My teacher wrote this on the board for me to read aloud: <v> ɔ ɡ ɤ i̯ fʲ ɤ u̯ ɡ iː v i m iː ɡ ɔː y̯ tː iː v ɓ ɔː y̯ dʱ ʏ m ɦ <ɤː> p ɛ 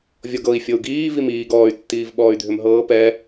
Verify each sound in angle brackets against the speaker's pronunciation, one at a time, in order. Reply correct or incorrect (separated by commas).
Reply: incorrect, correct